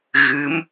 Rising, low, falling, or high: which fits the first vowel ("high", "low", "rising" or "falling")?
rising